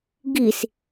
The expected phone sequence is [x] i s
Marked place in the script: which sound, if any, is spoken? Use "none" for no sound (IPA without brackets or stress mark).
ɡ